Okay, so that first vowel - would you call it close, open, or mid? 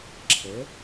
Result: mid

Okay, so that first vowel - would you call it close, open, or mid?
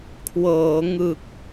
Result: mid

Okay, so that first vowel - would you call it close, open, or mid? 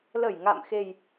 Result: mid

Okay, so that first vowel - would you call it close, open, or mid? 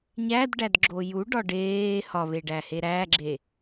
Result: open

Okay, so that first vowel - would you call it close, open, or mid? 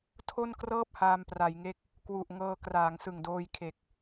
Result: mid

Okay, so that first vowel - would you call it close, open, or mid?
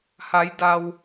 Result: open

